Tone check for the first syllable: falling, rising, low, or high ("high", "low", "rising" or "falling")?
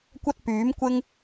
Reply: high